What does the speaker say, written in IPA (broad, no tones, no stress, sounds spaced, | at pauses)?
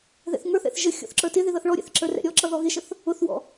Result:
ð ɛ̰ θ ŋ ə˞ θ ɛ̰ θ ʒ ə xʲ ɔ̰ θ ǁ ə˞ t ɪ ð ɪ ð ʌ θ ɭ ɔ ɾʲ ɛ̰ θ ǁ ə˞ r ɛ̰ ɾʲ ɔ ǁ ʌ ð ɔ ɣ ɪ ʃ ə θ | ʊ θ w ɔ̰